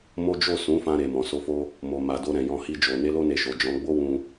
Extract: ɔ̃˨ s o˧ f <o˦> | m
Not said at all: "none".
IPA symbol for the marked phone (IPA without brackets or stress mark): o˦